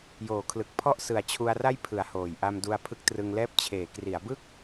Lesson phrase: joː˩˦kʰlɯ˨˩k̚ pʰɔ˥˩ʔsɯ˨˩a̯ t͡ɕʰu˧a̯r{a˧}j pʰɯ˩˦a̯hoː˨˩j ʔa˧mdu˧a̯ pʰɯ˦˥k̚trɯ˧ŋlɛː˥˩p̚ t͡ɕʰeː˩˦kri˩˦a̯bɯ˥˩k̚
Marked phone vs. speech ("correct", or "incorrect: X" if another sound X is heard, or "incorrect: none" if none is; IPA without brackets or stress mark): incorrect: a˥˩